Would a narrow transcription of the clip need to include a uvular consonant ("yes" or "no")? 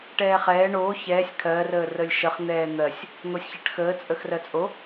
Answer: yes